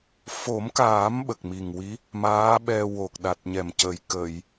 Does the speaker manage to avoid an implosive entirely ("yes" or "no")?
no